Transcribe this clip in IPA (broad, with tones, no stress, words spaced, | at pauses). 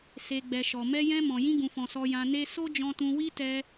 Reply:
se˨ɡ͡bɛ˨ ʃɔ˨mɛ˧ jɛ̃˧ mɔ̃˨jĩ˧ɡũ˨fɔ̃˨ sɔ˧jã˧ne˦ so˦d͡ʒɔ̃˧tũ˧wi˦ tɛ˧